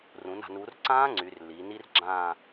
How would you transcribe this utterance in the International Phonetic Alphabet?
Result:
r ũ˩˧ n a̤˩˧ n u˩˧ r ǀ ãː˦˥ ŋ͡ǀ y˩˧ r lː iː˩˧ n i˦˥ r ɡ͡ǁ ãː˥˧

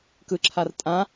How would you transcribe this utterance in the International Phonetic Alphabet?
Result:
k ɯ ǁʰ a r tʼ ã

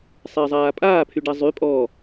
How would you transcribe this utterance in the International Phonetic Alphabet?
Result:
sˤ ɪː zˤ aː pʼ aː pʰ y ɖ a zˤ y pʼ ɔ

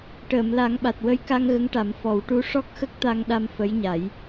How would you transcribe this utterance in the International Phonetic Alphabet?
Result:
ʈ əː˨˩˨ m l a˨˩˦ ŋ ɓ a˨˩ t̚ w ə˧ j k a˧ ŋ ɣ ə˧˥ ŋ ʈ a˨˩˦ m f ɔ˨˩˦ w ʈ u˧˥ ʂ ɔ˦˥ k̚ x ə˦˥ k̚ t̪ a˧ ŋ ɗ a˧ m f ə˧˥ j ɲ a˨˩˦ j

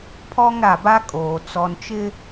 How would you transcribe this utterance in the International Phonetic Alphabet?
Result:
pʰ ɔ˦ ŋ ɾ a˨ b a˦ kʼ oː˨ t͡s ɔ˨ n t͡ʃ ɪ˦

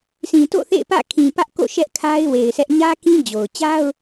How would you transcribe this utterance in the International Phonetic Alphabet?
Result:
s ĩ˨ t o̰˦˨ θ ḛ˦˨ ɪ̯ p ä̰˦˨ kʰ ĩ˨ p ä˦ ʔ k o̰˦˨ ʃ ɛ˦ ʔ kʰ a˦ ɪ̯ w e˨ ɪ̯ sʰ ɛ˦ ʔ ɲ ä˦ k ĩ˦ d͡ʑ o˨ ʊ̯ t͡ɕ a˦ ʊ̯

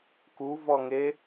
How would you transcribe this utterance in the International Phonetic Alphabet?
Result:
k u v ɔ ŋ e

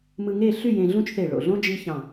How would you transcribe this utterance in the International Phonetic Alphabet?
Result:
m ɯ˧ ŋ e˥˧ ɬ y˥˧ j ẽ˧ ɮ ũ˥ t͡ʃ θ e˧˩ ɭ o̰˧˩ ɮ õ˥ d͡ʒ i˥ ç ɑ̃˧˩

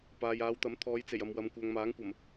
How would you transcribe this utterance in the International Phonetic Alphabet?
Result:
p aː˨ j aː˨˧ w t̪ ɐ˨˥ m t̪ʰ ɔː˨˧ j t͡s e˨˩ j ɐ˨ m w ɐ˨ m kʷ œː˨ ŋ m aː˨˥ ŋ kʷ ɐ˨˩ m

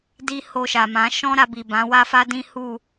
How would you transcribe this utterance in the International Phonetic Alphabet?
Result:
d i˦ h o˧ ʃ a˨ m ã˨˦ ʃ ɔ̃˦ ɾ a˧ b i˨ b ã˨˦ w a˦ f a˦ d ĩ˦ h u˦˨

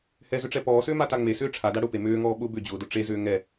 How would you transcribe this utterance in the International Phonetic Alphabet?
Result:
h ɛ z ʏ ʈ͡ʂ ɛ p ɔː s ʏː m a t a ŋ͡m e s ʏː ʈ͡ʂʰ a d a ɽ ʊ p e m ʏː ŋ ɔː ɓ ʊ b ʏ d͡ʑ ʊː d ʊ ʈ͡ʂ e z ʏː ŋ ɛ

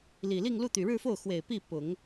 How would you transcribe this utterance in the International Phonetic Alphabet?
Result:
l i˨˩ l i˥˧ ŋ l u˥˩ t̪ y˨˩ ɻ ɻ̩˥˧ f o˥˩ ʊ̯ x w e˨˩ ɪ̯ p i˥˩ p ʊ˨˩˦ ŋ

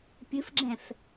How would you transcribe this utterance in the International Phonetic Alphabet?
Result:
pʲ ɨ f ɡ͡ǁ ɛ̃ f

